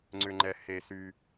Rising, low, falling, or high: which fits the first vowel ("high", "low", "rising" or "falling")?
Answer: low